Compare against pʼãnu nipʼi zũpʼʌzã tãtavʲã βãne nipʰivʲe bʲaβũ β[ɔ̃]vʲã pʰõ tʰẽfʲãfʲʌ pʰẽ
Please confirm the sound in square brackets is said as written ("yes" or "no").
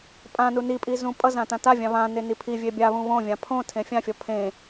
no